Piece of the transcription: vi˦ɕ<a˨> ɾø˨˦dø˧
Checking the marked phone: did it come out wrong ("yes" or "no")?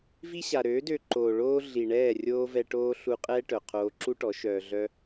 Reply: no